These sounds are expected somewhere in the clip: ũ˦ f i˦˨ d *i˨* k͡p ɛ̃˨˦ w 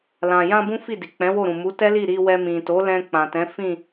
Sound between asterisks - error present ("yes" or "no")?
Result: no